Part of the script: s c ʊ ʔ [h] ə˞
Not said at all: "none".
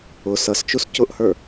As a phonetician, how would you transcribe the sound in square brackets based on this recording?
h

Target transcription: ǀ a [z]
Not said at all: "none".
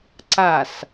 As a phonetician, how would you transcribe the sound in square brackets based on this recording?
s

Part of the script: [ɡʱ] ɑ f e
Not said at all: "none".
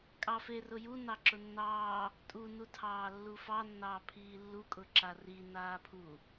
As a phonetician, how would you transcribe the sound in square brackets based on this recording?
kʼ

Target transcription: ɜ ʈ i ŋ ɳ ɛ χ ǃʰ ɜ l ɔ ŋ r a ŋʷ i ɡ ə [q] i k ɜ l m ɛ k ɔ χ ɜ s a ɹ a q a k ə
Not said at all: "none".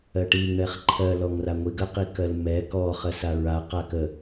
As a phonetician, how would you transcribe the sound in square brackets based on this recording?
q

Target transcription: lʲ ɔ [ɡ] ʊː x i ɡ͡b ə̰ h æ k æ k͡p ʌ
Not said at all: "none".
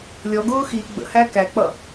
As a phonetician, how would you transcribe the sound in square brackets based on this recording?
ɡ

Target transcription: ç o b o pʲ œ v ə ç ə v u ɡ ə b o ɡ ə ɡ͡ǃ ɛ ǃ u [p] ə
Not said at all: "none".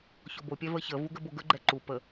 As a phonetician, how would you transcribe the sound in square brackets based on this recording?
p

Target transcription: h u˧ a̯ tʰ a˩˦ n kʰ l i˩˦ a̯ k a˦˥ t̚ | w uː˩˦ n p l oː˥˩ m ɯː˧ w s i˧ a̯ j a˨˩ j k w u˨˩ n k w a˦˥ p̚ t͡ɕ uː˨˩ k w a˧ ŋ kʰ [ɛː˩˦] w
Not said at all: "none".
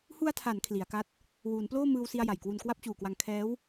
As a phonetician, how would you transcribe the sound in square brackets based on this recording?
ɛː˦˥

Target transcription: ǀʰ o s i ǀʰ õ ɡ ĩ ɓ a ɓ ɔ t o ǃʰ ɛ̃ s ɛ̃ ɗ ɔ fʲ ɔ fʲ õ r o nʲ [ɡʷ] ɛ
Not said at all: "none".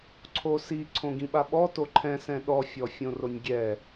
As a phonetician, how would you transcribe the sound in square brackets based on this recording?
ɡʲ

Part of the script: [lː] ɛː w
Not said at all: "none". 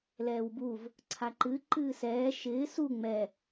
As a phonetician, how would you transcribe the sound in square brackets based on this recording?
l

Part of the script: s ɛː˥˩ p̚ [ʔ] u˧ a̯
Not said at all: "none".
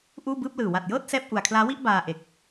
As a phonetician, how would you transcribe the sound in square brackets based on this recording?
ʔ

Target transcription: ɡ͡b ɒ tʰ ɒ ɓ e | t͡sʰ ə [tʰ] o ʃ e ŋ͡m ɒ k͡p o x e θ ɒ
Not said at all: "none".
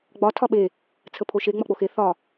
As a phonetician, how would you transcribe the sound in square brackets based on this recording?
pʰ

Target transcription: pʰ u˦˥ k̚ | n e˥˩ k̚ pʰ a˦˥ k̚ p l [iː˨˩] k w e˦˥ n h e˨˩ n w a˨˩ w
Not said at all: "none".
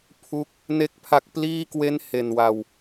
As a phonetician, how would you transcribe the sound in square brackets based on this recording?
iː˥˩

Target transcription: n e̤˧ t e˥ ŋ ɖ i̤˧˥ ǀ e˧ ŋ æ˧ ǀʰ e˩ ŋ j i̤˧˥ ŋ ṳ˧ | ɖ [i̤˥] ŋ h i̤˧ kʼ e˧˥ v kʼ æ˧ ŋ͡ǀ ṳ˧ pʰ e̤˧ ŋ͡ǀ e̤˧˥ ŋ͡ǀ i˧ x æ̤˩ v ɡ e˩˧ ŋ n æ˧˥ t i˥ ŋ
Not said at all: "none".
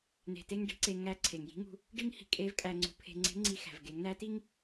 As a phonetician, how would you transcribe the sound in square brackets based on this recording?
i˥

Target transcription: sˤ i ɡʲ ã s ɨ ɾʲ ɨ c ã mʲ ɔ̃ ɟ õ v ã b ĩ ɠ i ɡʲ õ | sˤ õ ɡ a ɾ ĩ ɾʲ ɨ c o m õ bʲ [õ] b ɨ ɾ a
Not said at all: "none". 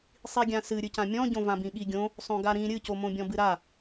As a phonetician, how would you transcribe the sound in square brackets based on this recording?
ɔ̃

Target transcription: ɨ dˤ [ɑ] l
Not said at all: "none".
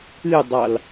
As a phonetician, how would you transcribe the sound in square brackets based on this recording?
ɑ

